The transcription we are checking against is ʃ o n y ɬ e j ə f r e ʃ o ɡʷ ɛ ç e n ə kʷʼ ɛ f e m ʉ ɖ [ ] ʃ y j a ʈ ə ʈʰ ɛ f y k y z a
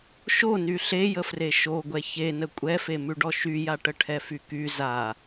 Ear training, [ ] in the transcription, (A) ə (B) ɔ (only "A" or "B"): B